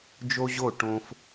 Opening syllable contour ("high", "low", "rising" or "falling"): high